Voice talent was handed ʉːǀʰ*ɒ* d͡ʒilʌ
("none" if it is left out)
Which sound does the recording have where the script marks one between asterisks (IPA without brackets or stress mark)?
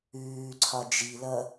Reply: ɒ